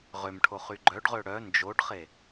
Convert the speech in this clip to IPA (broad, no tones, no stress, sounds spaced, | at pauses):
ʁ ø m ʈʰ o χ y ɡ͡ǃ œ ɖ ʁ ø ɽ œ n d͡ʒ o ɖ χ e